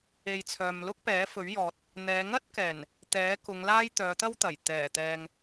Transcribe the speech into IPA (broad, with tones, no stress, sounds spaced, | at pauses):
e˨ j t͡sʰ œː˨ m l ʊ˥ k̚ p ɛː˨˥ f ɵ˨˥ ɥ j ɔː˨ t̚ | n̪ ɛː˨˧ ŋ ɐ˥ t̚ k ɛː˨˩ n | t̪ ɛː˨˥ k ʊ˨˧ ŋ l aː˥ j t̪ œː˨˧ t̪ ɐ˥ w t̪ ɐ˨˩ j t̪ ɛː˨˩ t̪ ɛː˨ ŋ